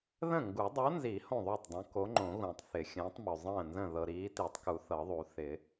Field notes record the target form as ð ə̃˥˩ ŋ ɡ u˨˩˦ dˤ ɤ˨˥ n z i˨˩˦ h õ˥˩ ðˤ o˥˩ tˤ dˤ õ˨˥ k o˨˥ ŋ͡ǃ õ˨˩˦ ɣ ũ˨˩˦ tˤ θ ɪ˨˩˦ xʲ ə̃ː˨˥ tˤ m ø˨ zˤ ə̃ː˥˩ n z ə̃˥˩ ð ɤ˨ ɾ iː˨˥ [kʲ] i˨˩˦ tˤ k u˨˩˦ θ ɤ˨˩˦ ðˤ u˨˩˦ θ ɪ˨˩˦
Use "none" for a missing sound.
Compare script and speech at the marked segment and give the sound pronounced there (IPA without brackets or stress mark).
t